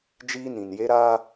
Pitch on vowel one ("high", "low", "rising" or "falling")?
high